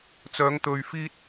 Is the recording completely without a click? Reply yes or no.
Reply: yes